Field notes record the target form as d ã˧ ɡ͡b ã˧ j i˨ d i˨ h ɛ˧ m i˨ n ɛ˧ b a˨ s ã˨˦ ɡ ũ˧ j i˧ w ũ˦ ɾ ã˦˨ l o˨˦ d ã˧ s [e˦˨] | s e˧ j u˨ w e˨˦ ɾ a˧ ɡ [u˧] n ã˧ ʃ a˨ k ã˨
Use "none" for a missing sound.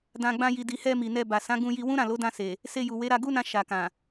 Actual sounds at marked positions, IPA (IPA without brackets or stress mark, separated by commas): e˨, u˦